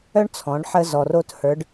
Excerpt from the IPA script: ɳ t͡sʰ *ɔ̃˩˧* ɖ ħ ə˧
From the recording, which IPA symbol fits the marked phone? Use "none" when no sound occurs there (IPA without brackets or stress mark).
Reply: ɔ̃˩˧